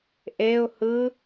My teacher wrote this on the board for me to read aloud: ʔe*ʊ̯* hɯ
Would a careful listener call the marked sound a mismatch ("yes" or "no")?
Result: no